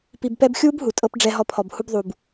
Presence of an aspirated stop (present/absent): present